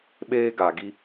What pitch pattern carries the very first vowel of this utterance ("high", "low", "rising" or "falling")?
high